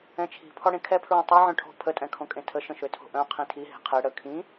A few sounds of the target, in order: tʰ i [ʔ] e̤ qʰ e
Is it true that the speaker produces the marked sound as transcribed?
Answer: no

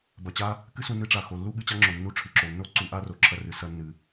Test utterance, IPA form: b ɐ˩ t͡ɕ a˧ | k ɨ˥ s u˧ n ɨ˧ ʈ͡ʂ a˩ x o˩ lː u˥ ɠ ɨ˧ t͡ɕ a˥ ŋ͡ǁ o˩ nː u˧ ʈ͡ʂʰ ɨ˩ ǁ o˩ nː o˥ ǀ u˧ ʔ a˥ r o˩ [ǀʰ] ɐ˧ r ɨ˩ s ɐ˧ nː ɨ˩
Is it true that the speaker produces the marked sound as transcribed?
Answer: no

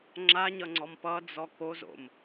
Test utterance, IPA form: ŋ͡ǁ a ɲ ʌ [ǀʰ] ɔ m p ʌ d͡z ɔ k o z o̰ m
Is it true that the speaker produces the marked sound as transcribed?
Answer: no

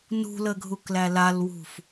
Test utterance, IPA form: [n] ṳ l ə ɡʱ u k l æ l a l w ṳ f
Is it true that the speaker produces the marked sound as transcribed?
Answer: yes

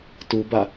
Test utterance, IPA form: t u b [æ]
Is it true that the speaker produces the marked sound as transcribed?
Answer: no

